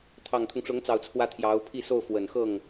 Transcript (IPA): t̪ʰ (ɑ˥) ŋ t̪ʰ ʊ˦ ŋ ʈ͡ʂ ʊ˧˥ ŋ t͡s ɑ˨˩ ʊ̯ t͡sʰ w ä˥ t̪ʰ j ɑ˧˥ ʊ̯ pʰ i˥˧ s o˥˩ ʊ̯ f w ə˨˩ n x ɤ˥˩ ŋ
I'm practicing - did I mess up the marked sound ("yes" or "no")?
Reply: yes